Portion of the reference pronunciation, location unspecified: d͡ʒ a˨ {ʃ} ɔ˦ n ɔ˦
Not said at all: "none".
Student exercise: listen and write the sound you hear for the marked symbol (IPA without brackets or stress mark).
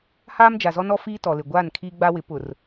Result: z